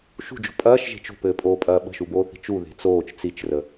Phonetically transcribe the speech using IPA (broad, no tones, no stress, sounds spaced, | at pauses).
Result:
ʃ ṳ d͡ʒ o̤ pʼ ɐː ʃ ʒ e̤ t͡ʃ o̤ p ɘː pʼ oː pʼ ɐː ɓ ə̤ ʃ u b oː θ i̤ t͡ʃ u ð e̤ t͡s oː t͡ʃ t͡s i t͡ʃ r ə